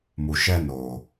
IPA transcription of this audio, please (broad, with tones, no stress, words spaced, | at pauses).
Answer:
mu˨ʃɛ˧ noː˨